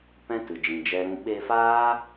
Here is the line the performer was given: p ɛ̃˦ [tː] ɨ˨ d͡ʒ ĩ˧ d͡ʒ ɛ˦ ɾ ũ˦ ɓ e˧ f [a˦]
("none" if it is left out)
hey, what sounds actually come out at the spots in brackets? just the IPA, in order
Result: t, aː˦

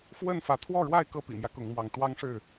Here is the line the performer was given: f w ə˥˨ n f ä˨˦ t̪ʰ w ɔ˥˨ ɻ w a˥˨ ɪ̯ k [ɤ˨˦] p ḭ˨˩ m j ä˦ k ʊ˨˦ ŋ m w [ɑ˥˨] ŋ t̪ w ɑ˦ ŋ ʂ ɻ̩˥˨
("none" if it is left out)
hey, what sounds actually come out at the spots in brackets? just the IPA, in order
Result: ɤ˥˨, ɑ˨˦

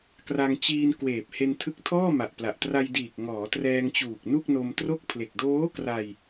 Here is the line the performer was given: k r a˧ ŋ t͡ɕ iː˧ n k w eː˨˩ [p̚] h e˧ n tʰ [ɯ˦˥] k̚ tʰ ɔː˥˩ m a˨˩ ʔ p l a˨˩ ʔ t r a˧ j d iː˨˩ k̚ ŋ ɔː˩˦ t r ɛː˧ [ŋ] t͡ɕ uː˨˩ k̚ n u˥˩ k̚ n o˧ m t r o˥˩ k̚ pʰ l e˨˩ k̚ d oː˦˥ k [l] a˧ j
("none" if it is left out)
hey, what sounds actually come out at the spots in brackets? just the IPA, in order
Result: p̚, ɯ˦˥, ŋ, r

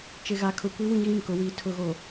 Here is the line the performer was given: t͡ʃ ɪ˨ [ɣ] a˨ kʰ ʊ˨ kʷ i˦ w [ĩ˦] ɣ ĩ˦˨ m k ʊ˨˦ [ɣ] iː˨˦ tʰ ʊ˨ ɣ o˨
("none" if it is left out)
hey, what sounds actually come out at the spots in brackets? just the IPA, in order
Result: ɣ, ĩ˦, w

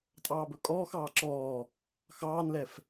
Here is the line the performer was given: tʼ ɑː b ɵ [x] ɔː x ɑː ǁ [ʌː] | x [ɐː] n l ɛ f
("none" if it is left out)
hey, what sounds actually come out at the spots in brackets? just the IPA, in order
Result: kʼ, ɔː, ɑː

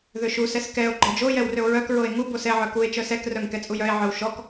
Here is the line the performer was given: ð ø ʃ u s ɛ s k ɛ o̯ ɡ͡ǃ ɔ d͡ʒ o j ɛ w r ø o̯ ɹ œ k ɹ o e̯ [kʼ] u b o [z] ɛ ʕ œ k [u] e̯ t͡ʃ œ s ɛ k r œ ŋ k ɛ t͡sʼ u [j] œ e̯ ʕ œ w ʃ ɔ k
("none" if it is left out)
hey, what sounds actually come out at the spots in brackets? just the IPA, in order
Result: ŋ, s, u, j

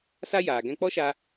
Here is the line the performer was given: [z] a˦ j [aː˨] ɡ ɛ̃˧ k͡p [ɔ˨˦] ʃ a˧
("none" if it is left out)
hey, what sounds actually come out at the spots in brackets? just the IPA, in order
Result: s, aː˨, ɔ˦

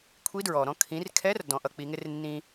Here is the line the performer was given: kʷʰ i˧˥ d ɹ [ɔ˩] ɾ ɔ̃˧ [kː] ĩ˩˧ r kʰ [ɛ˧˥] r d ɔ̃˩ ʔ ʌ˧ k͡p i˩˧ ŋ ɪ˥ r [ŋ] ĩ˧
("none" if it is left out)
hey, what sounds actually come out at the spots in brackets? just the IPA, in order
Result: ɔ˩, kʰ, ɛ˧˥, nː

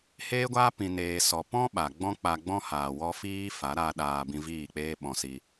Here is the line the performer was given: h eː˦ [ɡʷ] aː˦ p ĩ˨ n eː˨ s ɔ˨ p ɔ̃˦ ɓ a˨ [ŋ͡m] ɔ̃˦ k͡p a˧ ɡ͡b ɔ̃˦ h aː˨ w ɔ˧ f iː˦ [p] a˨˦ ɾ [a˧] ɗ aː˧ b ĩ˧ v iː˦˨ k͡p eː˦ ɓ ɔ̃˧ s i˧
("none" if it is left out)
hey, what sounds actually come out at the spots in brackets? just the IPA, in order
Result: ɡʷ, ɡ͡b, f, a˧

